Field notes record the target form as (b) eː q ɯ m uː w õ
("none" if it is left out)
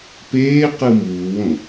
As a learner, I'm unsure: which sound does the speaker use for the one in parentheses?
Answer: p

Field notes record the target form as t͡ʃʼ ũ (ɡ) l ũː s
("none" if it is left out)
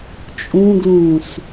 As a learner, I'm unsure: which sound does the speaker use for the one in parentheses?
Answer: ɡ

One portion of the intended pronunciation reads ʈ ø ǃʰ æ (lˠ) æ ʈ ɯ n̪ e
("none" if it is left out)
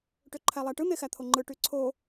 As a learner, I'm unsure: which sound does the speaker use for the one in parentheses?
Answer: lˠ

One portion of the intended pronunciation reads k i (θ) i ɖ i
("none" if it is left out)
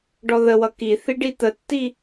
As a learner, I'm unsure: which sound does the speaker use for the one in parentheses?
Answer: θ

